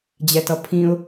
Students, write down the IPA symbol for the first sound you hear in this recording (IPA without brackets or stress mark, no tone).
d͡ʑ